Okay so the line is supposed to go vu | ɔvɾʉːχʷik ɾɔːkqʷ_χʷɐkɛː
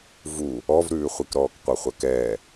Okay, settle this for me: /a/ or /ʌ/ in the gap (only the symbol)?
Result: ʌ